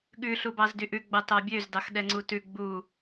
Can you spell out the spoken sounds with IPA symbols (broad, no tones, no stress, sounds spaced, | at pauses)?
ɠ ʉ ɬ u b ɑ z d y ʔ ʉ ɡ͡b ɑ t ɑ bʲ ø z d ɑ x ɗ ɛ ŋ͡ǀ u t ʉ ɡ͡b u